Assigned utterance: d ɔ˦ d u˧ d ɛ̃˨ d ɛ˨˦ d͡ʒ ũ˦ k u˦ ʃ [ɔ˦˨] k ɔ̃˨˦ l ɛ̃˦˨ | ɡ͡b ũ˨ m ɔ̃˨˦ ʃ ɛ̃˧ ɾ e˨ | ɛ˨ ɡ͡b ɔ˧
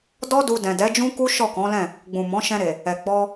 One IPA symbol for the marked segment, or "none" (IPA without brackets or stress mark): ɔ˦˨